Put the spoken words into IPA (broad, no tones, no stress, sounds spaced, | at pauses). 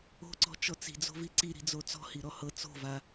o̤ ǀ ɔ̤ t͡ʃ ɔ t͡s i̤ d͡z o̤ v i ǀ i ɾ i̤ d͡z o t͡s ɔ̤ h i ɾ ɔ h ɤ t͡s o̤ v a